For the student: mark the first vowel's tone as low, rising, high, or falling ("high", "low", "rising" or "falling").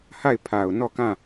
falling